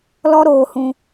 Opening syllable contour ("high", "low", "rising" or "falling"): high